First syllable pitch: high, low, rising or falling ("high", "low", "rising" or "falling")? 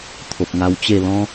low